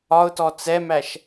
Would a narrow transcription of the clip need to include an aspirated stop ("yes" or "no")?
no